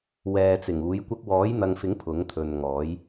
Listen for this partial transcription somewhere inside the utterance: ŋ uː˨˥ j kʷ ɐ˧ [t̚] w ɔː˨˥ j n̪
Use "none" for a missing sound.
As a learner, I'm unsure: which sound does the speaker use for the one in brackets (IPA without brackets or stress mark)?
k̚